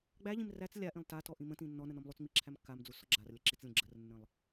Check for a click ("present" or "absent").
present